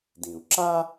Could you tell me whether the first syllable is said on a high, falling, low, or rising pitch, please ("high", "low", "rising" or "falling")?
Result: low